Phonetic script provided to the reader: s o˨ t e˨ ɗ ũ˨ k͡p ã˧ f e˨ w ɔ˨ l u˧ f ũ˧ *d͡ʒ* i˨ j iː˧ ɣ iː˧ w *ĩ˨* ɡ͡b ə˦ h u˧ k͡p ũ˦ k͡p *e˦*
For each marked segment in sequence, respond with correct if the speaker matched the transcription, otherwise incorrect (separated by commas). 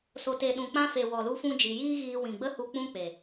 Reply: correct, correct, incorrect